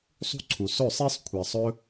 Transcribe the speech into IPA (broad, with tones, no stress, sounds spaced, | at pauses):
sˤ ṳ˦ ǀʰ u˨ s ɵ˦˨ sˤ e˦ sˤ kʷʰ e˨ sˤ ɵ˧